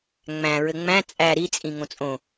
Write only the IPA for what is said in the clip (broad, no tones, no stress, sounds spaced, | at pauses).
ŋ͡m æ̃ ɹ ɘ ŋ͡m æ̃ t͡sʼ æ ɾ i t͡sʼ ĩ ŋ õ t͡sʼ õ